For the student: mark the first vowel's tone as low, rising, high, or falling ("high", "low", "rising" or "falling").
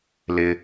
high